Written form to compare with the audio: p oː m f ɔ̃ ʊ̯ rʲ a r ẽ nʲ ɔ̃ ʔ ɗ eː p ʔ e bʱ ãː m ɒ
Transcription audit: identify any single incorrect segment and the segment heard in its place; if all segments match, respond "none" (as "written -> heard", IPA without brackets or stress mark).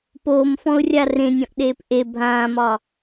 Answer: none